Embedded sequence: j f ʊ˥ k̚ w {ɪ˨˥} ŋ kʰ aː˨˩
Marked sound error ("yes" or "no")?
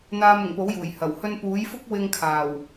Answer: yes